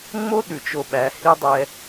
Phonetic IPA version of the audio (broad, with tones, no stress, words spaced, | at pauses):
ŋ͡mo˦ɗʉ˨t͡ʃo˨ɓæ˨˦ hi˦dˤɛ˦